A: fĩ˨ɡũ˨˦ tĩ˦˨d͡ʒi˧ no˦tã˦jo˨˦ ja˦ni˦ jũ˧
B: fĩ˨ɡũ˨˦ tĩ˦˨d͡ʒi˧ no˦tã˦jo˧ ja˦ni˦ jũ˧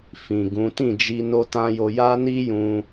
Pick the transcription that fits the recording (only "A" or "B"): B